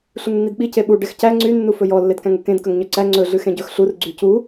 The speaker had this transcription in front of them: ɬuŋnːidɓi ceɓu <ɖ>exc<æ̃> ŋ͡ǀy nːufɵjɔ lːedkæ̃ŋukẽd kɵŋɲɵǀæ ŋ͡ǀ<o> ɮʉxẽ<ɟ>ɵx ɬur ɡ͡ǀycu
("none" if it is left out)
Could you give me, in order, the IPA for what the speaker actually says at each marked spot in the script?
ɖ, æ, ɵ, ɟ

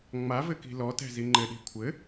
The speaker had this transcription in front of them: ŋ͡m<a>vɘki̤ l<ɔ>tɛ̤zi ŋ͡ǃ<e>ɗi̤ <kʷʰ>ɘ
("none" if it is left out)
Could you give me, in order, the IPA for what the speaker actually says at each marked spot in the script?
a, ɔ, ɘ, kʷʰ

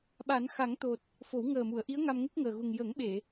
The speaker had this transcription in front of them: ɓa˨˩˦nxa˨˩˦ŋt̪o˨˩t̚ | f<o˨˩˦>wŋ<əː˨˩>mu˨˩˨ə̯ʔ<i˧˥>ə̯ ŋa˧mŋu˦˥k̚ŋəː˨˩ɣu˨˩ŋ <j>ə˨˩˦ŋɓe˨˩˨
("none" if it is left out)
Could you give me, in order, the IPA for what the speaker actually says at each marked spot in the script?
o˨˩˦, əː˨˩, i˧˥, j

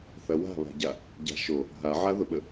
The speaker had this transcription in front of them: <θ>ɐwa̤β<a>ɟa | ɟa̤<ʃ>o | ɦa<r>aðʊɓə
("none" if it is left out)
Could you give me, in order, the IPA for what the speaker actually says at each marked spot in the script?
θ, a̤, ʃ, ʕ

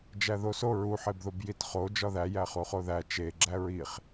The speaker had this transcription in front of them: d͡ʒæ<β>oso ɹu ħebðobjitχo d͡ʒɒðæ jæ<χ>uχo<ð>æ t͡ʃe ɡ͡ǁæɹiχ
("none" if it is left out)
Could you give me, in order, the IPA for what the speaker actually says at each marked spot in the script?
ð, χ, ð

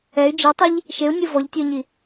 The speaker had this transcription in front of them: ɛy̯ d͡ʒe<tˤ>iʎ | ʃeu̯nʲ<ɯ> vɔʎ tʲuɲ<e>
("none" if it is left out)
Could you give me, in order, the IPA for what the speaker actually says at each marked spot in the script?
tˤ, ɯ, i

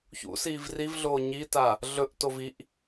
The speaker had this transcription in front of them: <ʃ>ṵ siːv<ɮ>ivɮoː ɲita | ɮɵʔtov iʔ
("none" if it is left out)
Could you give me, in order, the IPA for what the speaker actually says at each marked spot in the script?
ç, r

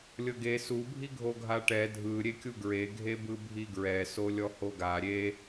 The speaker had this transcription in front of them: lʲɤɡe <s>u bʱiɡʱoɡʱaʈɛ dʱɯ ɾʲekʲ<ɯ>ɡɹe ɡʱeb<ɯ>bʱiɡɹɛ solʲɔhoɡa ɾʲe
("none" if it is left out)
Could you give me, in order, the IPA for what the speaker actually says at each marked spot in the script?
s, u, ɯ

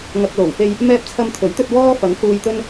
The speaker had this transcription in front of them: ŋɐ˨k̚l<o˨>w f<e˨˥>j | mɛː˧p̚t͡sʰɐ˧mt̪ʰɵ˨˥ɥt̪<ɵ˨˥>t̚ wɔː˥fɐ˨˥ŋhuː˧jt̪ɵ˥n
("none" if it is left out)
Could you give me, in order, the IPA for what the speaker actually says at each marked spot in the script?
o˨˩, e˧, ɵ˧

